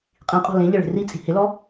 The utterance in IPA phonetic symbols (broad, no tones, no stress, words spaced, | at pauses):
qʼĩqʼɔ̤ lẽʎɪ ɭe̤rit͡sʼi̤ hɪlɔ